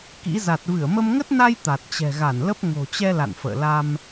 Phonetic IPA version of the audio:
k ḭ˧˥ z a˨˩ t̚ v ɨ˧˩ ə̯ m ə˧ m ŋ ə˦˥ t̚ n a˧ j t̪ a˨˩ t̚ t͡ɕ ɛ̤˨˩ ɣ a˧˩ n l ə˦˥ p̚ ŋ o̤˨˩ t͡ɕ ɛ˧ l a̰˧˨ n f ə̰ː˧˨ l a˧ m

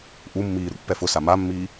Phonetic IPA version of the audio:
ʔ u mː iː ɾ ṵ pː ɛ f ʊ s a m a mː iː

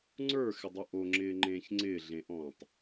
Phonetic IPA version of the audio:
ŋ͡ǀ ə˞ x ɪ dˤ u ʔ o ŋ͡ǁ ɪː ŋ͡ǃ ẽː ç ŋ͡ǀ ɪː ɮ ẽ ʔ ɔ̃ː tˤ

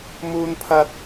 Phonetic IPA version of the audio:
m uː˥ n pʰ ɐ˥ t̚

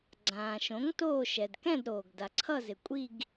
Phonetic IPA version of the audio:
ɡ͡ǀ ãː˩ ʃ õ˩˥ ŋ t oː˦˨ ʃ ɛ˩ d k ɛ̃˦˨ d ɾ oː˩ ɡ d a˩ ǀʰ ʌ˦˨ z ɪ˩ kʷʼ i˦˨ ɡ

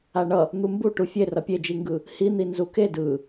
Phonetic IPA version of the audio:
a ɳ ʌ | n̪ u m b u ʈ u fʲ e r ʌ pʲ e d͡ʒ i ŋ ɡ ɯ | h i n̪ i n z u k e d ɯ

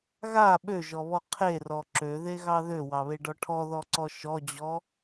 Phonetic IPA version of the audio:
ɣ a ɓ ø ʒ ɔ β ɔ qʰ e r ɔ ǁ ø ð e ɣ ɑ ð ø w ɑ β e ɖ ɔ ʈʰ ɔ ð ɔ ǀ ɔ ʃ ɔ d͡ʑ ɔ

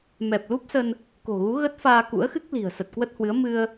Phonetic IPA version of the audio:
m ɛ˨˩ p̚ l u˦˥ p̚ s ə˧ n | k o̤˨˩ ɣ u˨˦ ɣ ə˦˥ t̚ f aː˧ k ṵ˧˥ ə̯ x ɨ˦˥ k̚ l i̤˨˩ ə̯ s ə˨˩ t̚ k w ə˦˥ t̚ h w ɨ˨˦ ə̯ m ɨ˧ ə̯

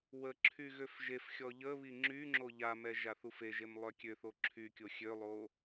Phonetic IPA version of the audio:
w ə ǁʰ y ɣ ø f ʒ e f xʲ ɔ ʎ ə β i ŋ͡ǁ y ŋ͡ǁ o ʎ a m ɛ ʒ a θ u f e ʒ e m lˠ œ kʲ ø θ o ǁʰ y kʲ o xʲ ø lˠ o

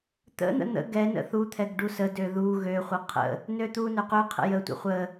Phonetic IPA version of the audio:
t̪ ə̰ n̪ ə̰ n̪ ə̰ ɡ ɛ n ə̰ θ u t̪ʰ ɛ ɡ ɖ u s ə d ø ð u ɣ ø χʷ ə qʰ ə̰ | n ø t̪ u n ø q ø qʰ ə̰ j ə tʷ ə̰ χʷ ə

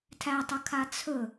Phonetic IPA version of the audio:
tʰ æ tˤ ə kʰ a t͡sʰ ɵ

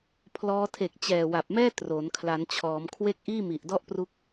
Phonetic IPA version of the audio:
pʰ l ɔː˧ tʰ e˨˩ k̚ t͡ɕ ɛː˨˩ w a˨˩ p̚ m ɛː˥˩ t r o˩˦ n kʰ l a˩˦ n t͡ɕʰ ɔː˩˦ m kʰ w e˥˩ k̚ ʔ iː˥˩ m i˨˩ ʔ d ɔ˥˩ ʔ p r u˦˥ k̚

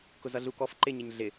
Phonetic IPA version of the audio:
k ʊ z ʌ ɮ u k ɔ f ǃ ɪ ɲ ɪ ɲ ɮ ɪ

